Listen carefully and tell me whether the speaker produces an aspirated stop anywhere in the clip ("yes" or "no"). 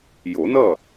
no